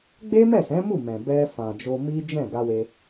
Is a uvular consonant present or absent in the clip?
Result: absent